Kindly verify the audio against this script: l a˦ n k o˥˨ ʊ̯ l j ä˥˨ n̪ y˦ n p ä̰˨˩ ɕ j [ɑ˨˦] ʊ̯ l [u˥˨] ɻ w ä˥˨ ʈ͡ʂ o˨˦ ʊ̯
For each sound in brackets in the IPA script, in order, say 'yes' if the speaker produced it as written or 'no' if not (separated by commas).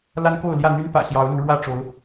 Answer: yes, no